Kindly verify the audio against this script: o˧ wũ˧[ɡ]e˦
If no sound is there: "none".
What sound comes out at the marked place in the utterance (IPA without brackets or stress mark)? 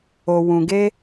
ɡ